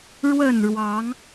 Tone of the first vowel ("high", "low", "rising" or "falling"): falling